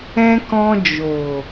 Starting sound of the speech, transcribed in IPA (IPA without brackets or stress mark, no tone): ɛ̃